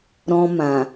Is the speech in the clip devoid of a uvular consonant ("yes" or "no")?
yes